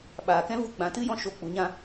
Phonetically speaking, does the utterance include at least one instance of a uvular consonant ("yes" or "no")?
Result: no